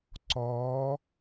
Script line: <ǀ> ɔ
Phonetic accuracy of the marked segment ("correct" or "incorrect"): correct